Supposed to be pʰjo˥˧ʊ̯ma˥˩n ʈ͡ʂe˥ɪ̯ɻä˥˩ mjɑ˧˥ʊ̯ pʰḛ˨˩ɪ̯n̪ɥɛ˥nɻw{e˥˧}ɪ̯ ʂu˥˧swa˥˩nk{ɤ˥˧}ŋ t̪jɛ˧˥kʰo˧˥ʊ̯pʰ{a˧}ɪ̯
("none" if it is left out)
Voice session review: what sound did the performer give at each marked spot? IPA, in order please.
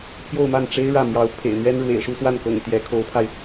ḛ˨˩, ɤ̰˨˩, a˧

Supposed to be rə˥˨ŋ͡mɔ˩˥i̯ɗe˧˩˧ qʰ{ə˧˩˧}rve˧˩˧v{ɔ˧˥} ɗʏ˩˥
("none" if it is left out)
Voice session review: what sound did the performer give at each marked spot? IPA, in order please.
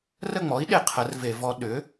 ə˩˥, ɔ˧˥

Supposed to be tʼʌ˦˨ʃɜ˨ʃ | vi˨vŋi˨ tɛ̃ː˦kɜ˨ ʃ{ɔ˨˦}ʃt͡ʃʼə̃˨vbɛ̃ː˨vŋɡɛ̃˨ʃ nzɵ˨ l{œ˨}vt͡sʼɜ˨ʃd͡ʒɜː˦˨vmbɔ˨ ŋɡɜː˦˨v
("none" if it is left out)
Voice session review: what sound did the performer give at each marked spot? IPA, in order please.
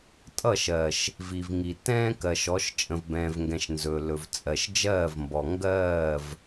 ɔ˨˦, ɵ˨

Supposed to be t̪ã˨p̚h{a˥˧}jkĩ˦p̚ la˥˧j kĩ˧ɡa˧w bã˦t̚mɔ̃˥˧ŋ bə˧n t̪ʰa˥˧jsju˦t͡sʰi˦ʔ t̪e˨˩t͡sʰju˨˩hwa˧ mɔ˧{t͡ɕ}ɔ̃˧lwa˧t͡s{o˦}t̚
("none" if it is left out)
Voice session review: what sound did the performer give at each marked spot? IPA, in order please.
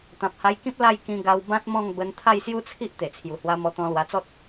a˧, t̪, ɔ˦

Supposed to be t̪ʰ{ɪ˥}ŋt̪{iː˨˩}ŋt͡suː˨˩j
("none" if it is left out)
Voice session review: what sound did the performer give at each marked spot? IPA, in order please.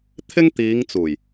ɪ˥, iː˨˧

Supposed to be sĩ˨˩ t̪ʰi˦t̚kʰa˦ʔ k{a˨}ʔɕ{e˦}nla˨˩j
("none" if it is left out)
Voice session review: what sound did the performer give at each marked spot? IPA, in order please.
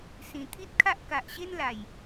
a˨, e˦

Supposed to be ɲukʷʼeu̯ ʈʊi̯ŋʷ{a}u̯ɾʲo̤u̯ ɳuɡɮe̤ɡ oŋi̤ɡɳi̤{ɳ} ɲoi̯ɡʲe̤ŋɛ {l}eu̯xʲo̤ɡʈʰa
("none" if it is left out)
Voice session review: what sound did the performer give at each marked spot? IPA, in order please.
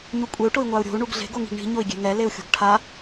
a, none, l

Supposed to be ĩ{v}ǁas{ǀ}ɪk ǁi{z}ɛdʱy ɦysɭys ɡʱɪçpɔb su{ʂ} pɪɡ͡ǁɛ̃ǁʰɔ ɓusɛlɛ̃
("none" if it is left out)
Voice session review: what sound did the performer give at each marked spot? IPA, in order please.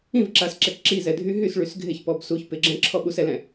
v, ǁ, z, ç

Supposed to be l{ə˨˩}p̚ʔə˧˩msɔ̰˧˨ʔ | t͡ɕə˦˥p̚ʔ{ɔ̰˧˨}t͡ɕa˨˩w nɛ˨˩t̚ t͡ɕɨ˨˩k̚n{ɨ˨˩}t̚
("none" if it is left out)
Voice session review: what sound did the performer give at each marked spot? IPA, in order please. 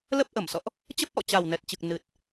ə˦˥, ɔ̰˧˨, ɨ˨˩

